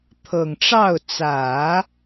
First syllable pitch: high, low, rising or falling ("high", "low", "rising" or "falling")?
low